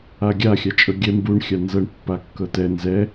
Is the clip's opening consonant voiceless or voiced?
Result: voiced